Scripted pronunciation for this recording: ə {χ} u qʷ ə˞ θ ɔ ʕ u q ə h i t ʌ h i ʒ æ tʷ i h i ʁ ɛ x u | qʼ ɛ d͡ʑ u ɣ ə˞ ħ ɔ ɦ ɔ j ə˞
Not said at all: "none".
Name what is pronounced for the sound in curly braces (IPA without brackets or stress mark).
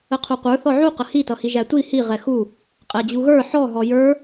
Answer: qʰ